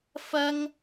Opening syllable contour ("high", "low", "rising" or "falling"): high